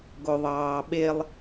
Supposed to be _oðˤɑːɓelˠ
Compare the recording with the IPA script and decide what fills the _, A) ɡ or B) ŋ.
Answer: A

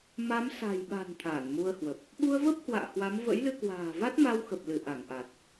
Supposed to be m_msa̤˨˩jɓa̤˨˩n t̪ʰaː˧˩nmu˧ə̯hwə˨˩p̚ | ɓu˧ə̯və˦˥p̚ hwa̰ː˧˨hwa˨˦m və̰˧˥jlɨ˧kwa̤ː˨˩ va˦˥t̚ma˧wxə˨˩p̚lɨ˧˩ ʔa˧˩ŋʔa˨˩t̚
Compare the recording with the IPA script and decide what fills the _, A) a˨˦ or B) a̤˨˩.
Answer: A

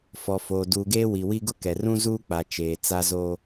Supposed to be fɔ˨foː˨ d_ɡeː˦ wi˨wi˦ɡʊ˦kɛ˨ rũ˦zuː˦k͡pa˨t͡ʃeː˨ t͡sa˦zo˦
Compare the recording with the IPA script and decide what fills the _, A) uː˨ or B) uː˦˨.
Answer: A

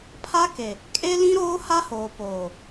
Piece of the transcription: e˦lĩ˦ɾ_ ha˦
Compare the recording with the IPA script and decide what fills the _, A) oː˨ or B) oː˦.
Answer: B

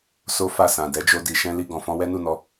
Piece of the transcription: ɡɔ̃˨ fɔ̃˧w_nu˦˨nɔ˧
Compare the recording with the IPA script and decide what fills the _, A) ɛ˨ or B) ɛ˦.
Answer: B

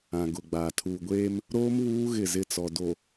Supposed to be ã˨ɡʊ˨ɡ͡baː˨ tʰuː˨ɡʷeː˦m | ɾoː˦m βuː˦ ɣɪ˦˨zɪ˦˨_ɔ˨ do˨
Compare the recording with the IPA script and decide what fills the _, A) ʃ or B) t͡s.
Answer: B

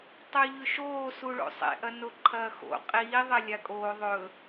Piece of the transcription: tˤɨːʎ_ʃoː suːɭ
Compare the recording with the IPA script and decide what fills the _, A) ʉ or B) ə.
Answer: A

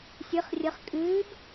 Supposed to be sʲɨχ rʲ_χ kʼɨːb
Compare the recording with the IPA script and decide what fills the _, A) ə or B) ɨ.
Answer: A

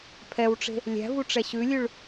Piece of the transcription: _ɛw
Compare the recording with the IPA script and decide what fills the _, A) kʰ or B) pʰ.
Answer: B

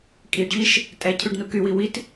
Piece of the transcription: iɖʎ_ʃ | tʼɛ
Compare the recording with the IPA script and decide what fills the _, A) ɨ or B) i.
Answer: B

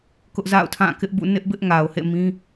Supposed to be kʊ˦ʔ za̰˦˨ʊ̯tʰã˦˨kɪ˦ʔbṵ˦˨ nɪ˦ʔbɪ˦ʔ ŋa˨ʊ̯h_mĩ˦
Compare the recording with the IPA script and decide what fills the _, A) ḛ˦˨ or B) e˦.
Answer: A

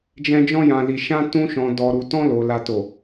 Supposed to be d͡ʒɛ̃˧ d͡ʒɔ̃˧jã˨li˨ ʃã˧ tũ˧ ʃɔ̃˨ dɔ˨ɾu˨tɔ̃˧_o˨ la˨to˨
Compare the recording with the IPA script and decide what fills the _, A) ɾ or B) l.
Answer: B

